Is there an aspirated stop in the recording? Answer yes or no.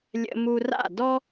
no